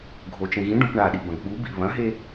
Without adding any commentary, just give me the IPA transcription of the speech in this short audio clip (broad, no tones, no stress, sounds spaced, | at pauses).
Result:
ɡʱ o t͡ʃ ẽ ɣ ĩ ɖ õ p ɳ a ɗ i b ɐ̃ ɡ ɓ u b ḭ β ɐ̃ ɦ e